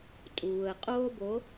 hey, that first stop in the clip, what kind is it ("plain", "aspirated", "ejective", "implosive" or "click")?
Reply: ejective